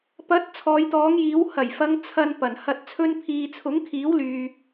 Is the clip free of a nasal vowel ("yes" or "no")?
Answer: yes